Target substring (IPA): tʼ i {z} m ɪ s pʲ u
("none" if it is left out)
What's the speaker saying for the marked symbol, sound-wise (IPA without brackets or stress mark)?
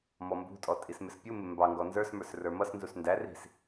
s